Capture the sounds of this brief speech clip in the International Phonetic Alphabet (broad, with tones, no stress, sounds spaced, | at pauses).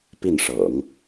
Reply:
p i˥˩ n ʂ ɤ̰˨˩˦ ŋ